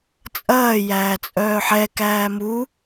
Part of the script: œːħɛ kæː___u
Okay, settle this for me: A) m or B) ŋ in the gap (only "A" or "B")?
A